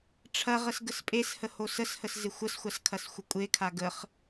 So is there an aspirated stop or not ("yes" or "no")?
yes